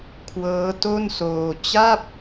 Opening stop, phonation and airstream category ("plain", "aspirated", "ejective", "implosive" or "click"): aspirated